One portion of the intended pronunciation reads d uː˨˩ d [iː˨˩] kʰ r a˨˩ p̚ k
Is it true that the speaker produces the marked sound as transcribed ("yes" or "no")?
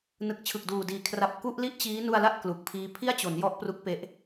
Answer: yes